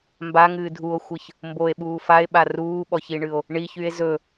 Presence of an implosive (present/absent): present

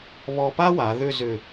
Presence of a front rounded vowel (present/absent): present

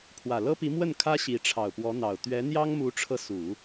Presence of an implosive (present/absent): absent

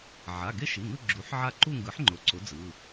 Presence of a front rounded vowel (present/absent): absent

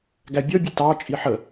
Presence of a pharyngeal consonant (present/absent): present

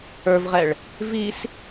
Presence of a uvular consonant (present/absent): present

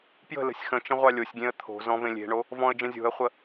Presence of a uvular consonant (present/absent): present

